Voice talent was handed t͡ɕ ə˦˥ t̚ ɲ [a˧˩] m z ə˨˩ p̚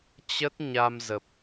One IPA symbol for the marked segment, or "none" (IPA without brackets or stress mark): a˧